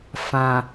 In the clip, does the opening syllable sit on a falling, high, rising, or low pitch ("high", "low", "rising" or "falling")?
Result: low